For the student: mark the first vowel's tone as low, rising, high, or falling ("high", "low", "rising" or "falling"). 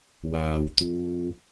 low